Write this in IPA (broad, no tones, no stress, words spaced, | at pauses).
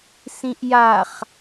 sĩʔjaχ